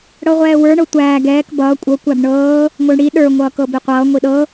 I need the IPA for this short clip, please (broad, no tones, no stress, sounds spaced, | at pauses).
ɽ ɤ ʁʷ ɛː w ə˞ ɳ ɤ tʷ æː ɡ ɛː k b ʌː kʷʼ ɤ kʷ æ b ɳ ɤː | ŋʷ ə˞ ɳ ɽ i ɗ ə˞ ŋʷ ʌː k ɤ b i qʷ ʌː ŋʷ i ɗ ɤ